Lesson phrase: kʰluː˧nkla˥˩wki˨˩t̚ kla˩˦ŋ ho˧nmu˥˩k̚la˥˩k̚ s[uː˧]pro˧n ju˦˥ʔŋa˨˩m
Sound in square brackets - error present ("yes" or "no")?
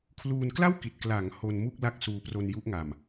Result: no